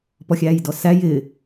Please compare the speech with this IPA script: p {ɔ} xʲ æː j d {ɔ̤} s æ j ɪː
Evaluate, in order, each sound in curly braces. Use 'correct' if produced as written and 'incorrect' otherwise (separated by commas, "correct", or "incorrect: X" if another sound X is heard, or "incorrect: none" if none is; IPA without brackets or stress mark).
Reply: correct, incorrect: ɔ